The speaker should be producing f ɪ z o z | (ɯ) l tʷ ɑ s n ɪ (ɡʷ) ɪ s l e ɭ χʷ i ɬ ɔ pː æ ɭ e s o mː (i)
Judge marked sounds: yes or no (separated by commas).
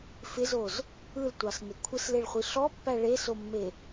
yes, no, no